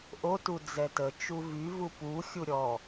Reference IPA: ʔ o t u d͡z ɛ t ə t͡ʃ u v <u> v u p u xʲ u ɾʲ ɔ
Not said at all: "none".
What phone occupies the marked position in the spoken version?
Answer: y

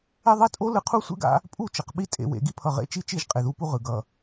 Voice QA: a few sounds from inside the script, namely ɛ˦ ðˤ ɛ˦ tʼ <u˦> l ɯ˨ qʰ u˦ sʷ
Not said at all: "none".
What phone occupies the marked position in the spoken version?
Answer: o˦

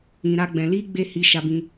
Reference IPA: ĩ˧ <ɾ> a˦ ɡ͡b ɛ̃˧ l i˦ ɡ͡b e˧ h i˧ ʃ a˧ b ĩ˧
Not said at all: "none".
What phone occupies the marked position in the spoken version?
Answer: ɾ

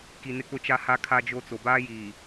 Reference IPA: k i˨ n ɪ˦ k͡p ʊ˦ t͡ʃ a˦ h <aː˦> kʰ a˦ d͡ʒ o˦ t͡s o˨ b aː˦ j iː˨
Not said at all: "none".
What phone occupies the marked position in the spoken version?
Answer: a˦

